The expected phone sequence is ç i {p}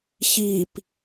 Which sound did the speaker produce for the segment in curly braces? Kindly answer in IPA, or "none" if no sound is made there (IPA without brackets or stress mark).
p